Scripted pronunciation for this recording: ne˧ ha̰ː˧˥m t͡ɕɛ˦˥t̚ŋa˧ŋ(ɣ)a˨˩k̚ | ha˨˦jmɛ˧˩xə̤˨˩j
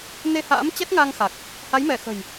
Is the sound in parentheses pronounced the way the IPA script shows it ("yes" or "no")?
no